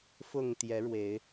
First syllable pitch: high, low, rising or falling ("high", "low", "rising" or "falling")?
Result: low